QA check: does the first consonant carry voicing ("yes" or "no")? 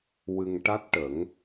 yes